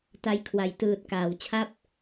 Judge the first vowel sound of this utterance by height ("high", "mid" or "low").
low